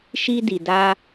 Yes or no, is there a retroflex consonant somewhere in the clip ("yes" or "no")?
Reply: no